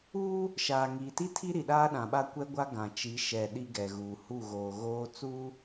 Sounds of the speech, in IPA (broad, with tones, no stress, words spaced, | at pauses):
uː˦ | ʃaː˨ŋiː˨ti˦tʰi˦ ɾi˨ɗaː˦ɗã˨ɓa˦ kʷɛ˦ɡʷa˦ ɡã˨t͡ʃi˨˦ ʃɛ˨ ɗi˦ɡɛ˨ɣuː˨ hu˦˨ɣoː˨ɣoː˦ t͡suː˦